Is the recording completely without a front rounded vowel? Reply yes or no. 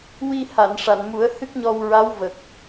yes